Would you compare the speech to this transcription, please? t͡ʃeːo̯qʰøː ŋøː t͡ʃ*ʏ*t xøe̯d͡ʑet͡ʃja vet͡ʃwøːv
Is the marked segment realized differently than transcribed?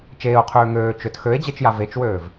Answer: no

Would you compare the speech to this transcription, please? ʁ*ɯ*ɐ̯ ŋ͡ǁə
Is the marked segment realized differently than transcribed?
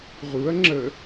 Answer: yes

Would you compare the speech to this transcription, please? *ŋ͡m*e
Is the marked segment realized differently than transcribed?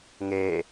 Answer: yes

